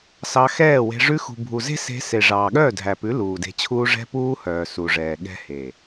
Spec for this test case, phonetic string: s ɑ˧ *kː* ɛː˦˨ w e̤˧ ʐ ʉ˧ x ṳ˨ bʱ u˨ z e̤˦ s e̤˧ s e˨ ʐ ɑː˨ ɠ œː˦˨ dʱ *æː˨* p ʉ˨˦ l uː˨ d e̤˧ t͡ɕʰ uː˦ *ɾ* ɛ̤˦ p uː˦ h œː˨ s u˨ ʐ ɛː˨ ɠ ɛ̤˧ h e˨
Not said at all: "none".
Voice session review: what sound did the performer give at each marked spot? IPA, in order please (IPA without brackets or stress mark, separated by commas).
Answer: x, æ˨, ʐ